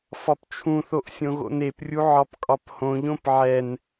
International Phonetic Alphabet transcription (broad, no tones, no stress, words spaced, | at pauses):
fɒpt͡ʃʰũθoʔ sʲõɣo̰neprʲu ʕɒpkʼɒphõʎõp ʕɛn